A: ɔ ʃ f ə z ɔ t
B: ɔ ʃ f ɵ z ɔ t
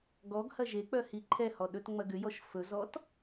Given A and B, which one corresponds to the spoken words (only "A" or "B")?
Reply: B